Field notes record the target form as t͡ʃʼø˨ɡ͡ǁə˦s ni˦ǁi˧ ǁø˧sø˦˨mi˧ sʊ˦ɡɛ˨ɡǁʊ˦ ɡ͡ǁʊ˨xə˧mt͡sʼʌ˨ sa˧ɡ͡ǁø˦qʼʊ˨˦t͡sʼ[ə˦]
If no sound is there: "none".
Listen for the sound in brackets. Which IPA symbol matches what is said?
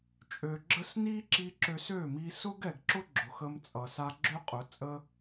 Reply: ə˦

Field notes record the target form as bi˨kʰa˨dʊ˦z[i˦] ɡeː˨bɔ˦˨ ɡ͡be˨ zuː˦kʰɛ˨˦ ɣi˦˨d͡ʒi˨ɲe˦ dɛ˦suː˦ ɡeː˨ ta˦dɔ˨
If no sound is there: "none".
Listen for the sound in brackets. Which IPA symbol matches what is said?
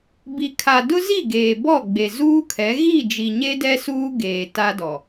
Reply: i˦˨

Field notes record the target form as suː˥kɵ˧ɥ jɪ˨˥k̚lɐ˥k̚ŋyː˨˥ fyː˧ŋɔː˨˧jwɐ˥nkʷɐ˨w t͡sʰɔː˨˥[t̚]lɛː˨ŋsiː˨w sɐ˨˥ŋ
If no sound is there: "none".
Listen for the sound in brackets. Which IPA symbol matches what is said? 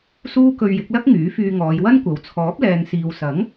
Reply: p̚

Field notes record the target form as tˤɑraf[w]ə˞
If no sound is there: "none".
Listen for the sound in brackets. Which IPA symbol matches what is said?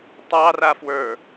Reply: w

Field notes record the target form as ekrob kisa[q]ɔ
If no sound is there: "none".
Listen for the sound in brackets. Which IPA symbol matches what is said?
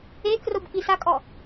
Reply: kʼ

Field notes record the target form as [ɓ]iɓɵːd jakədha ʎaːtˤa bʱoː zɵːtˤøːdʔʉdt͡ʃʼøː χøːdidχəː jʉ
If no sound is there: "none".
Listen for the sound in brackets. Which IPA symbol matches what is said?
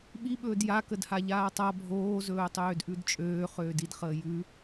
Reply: ɓ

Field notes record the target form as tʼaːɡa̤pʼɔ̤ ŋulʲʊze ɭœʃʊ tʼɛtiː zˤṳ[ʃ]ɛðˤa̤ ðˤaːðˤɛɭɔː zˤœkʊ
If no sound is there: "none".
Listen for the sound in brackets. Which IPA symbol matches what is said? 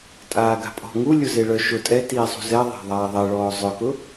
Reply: z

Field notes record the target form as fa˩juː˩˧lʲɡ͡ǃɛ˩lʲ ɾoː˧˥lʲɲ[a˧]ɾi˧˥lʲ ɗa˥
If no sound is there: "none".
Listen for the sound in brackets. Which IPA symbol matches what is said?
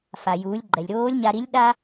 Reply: a˧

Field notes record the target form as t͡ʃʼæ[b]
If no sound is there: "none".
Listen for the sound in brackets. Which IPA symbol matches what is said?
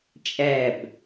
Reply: b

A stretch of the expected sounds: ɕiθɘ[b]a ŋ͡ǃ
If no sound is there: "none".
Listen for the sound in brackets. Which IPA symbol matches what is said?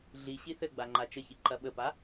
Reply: ɡ͡b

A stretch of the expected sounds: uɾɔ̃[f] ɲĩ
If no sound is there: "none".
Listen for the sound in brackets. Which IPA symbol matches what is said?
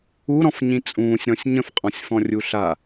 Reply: f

